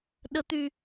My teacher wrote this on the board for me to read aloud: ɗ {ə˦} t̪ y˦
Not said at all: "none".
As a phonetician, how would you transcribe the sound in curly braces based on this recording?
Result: ə˦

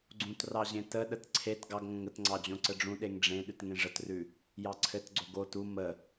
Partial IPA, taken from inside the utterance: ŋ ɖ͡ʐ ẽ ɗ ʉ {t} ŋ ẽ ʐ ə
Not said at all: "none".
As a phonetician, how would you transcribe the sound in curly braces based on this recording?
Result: t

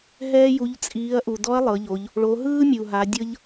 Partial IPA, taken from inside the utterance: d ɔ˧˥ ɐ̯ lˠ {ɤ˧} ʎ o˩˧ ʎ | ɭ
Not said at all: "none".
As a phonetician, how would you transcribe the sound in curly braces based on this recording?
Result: ɤ˩˧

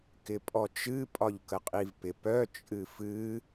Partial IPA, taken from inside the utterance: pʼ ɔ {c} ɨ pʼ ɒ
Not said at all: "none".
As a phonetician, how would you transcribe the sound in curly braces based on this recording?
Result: t͡ʃ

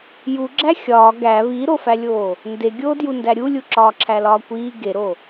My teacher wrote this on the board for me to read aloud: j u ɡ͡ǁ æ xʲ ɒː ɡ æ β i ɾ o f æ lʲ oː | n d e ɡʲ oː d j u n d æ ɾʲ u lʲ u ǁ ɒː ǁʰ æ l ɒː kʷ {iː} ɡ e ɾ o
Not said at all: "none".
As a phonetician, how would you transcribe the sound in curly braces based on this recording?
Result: iː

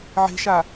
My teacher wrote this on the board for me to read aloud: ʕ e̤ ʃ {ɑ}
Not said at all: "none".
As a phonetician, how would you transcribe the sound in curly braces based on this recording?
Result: a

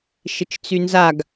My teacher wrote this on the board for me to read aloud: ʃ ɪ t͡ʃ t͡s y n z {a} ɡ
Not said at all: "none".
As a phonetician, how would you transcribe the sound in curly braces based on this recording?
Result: a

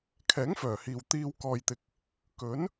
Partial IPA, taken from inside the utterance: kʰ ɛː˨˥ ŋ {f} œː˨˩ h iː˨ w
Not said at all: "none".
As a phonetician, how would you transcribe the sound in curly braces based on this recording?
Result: f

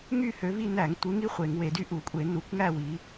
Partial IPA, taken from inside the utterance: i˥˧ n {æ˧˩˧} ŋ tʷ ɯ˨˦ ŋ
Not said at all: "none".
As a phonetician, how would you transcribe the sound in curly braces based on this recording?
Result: æ˧˩˧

